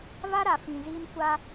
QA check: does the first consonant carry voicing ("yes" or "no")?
yes